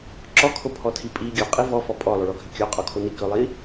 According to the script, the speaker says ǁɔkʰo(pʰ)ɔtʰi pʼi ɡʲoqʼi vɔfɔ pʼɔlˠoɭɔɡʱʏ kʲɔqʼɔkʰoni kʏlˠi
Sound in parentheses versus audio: correct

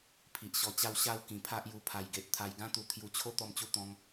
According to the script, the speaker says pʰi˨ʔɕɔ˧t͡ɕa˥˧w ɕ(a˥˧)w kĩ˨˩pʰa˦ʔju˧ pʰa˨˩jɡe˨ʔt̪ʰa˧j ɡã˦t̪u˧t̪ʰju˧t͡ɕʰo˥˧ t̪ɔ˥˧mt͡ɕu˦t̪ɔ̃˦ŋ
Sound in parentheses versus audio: correct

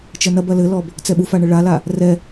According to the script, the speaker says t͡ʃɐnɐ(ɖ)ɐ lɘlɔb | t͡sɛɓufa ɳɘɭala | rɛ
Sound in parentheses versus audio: incorrect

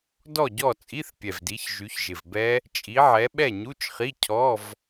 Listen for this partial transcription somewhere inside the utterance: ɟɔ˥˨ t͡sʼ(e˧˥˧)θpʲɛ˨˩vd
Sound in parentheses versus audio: incorrect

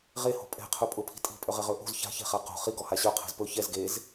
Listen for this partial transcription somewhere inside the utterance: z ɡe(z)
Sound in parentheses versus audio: correct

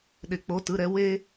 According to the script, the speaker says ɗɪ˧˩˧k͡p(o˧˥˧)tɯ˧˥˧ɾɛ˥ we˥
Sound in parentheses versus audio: correct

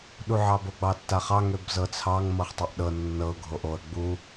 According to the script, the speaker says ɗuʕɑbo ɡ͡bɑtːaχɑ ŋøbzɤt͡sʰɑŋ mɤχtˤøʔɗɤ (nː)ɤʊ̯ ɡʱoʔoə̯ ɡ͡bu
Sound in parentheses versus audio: correct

